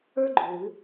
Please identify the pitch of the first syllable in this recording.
high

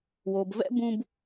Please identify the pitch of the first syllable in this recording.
low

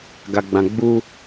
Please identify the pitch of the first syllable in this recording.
low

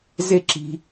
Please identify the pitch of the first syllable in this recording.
high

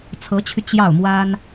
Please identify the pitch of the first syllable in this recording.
rising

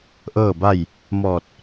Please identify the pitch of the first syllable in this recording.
falling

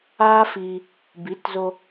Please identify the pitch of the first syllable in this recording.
high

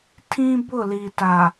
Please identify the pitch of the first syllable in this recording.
high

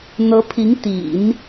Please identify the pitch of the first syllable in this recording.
rising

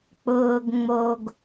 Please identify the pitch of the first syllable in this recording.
low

